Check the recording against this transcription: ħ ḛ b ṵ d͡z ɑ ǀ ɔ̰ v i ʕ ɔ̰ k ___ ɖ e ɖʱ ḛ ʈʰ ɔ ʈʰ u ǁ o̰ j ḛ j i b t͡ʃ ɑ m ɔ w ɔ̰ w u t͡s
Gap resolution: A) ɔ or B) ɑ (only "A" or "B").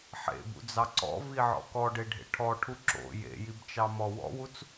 A